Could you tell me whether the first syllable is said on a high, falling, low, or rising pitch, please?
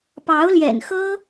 rising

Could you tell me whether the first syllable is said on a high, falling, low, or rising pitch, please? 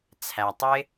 low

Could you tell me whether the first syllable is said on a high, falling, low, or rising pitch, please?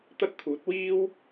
high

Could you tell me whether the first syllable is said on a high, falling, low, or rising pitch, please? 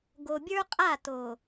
low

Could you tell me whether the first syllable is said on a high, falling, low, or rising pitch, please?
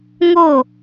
falling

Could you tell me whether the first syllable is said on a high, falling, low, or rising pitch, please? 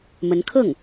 rising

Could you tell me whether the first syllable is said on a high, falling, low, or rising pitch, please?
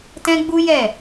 high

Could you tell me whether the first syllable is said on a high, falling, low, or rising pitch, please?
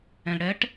low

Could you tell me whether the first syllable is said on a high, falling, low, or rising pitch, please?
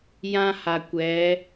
high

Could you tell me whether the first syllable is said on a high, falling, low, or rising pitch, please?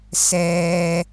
low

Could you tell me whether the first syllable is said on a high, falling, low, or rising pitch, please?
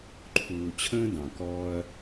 low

